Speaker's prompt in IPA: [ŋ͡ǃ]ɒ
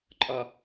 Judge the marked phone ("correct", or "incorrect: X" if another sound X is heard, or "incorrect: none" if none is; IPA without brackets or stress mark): incorrect: ǃʼ